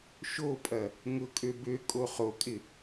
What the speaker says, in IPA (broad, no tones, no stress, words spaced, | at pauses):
ʃopʼɐ | ŋʊkʼø bø kʼoχokʼɪ